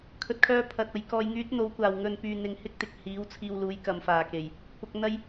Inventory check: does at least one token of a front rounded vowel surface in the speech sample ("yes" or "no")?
yes